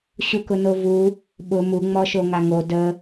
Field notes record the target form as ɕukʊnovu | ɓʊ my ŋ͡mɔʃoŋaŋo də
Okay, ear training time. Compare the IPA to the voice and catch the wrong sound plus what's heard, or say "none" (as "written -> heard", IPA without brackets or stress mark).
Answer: y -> u